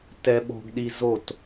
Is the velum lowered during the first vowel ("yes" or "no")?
no